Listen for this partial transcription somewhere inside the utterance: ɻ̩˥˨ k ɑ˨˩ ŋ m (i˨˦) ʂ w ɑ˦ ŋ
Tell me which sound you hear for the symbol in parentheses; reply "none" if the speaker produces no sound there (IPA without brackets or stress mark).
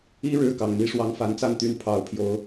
i˦